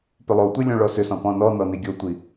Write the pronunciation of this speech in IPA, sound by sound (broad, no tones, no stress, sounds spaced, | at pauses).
p ʏ lˠ o tʷ i lʲ õ ɭ ɔ s ʏ s ɔ̃ p ɔ̃ n ɔ n ɔ n i ɡʲ o tʷ i